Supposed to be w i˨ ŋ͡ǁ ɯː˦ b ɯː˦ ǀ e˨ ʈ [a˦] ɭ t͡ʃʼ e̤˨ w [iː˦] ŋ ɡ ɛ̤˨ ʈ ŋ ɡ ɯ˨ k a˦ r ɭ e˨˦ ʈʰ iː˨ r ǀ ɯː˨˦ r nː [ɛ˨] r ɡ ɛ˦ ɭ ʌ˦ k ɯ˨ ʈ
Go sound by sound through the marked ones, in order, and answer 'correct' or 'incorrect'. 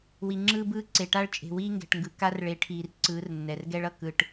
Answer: correct, correct, correct

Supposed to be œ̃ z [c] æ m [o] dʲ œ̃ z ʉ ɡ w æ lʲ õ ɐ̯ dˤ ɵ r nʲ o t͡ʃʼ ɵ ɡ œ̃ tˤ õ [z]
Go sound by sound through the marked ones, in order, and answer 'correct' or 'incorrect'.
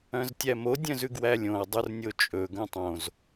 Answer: incorrect, correct, correct

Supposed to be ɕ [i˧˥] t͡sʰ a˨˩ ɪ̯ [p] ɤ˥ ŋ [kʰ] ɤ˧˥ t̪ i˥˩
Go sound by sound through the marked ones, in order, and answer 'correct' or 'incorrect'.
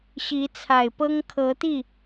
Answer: correct, correct, correct

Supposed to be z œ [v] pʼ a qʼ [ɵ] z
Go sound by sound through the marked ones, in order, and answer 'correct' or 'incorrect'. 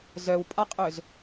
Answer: incorrect, correct

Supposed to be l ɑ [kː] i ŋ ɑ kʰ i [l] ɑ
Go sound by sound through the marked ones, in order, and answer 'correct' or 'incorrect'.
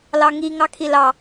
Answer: incorrect, correct

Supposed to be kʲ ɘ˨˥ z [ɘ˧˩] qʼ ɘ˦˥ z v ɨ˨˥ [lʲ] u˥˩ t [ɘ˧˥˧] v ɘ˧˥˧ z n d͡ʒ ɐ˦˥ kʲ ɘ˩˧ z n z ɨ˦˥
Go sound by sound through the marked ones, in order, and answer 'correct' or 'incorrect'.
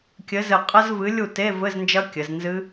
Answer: correct, correct, incorrect

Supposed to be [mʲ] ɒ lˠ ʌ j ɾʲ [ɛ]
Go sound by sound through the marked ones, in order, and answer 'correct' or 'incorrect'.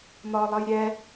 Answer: incorrect, correct

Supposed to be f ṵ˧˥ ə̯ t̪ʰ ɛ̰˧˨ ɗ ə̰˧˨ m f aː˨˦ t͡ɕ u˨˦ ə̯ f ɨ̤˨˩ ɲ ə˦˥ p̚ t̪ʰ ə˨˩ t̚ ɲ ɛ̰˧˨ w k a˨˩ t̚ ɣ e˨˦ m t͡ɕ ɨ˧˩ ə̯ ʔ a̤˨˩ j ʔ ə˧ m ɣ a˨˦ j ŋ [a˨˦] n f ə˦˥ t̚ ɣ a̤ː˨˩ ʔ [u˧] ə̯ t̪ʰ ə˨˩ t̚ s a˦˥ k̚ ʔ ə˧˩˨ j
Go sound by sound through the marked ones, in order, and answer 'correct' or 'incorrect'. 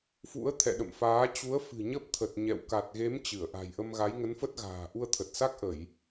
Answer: incorrect, correct

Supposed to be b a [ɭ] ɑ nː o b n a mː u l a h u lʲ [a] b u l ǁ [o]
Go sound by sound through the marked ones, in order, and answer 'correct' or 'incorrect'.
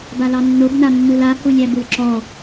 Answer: incorrect, incorrect, incorrect

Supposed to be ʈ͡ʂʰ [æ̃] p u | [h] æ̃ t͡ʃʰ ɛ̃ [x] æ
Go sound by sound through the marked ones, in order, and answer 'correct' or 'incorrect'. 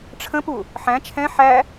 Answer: incorrect, incorrect, incorrect

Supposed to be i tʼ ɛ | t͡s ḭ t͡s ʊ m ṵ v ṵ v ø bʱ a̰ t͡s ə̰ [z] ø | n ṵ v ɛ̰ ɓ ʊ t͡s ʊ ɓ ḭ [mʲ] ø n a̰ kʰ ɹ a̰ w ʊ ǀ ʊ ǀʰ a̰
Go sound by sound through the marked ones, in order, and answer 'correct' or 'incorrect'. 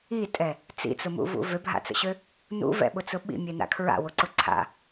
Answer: incorrect, correct

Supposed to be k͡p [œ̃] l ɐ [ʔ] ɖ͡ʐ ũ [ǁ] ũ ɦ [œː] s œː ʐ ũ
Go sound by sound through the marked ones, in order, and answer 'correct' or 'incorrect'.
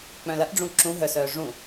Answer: correct, correct, correct, incorrect

